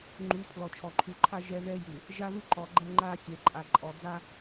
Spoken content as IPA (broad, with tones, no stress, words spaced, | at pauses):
ŋ͡ǃu˨˦ pʰlɔ˨t͡ʃʰɔ˨ǃʰu˨ǃʰa˦ ʒɛ˦ ðɛ˦ju˨ | ʒa˦ðu˦ǃɔ˨ ɡ͡ǃɛ˦ŋ͡ǃa˦ sʲɛ˨ǃʼa˨ ǃʼɔ˨d͡za˦